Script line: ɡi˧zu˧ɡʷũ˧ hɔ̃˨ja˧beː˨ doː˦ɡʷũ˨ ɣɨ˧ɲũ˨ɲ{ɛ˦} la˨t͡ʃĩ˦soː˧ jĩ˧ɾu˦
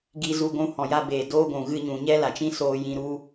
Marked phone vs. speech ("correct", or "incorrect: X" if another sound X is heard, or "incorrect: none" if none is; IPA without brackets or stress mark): correct